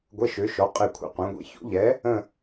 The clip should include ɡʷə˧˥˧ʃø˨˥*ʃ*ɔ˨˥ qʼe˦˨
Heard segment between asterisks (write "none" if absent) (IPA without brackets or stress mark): ʃ